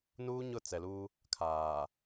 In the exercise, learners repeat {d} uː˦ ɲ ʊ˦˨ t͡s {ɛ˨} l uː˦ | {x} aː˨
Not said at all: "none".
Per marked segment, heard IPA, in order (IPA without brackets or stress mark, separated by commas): n, ɛ˨, kʰ